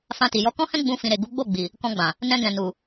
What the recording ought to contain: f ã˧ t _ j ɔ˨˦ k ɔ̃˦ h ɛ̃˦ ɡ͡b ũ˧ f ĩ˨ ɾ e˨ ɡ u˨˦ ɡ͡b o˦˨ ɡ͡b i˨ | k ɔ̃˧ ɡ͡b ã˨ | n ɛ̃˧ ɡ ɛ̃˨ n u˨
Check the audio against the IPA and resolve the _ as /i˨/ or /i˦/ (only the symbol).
i˨